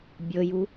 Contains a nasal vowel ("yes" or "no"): no